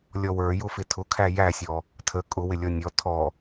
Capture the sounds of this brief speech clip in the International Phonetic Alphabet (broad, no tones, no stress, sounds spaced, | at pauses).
lʲ ɔ w ə˞ j ʊ f ɪ tʰ ʊ kʰ æ j æ sʲ ɔ | tʰ ə kʼ ʊ w ɪ lʲ ɔ nʲ ɔ tʰ ɔ